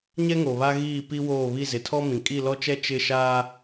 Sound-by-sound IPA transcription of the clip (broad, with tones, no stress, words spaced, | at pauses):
ɲɛ˦ŋo˨βa˦ ɣiː˦˨ pi˦woː˦˨ βi˦˨zɪ˨tʰɔ˦mĩ˨ kʼi˦˨lɔ˦t͡ʃɛ˦ t͡ʃɪ˦˨ ʃaː˦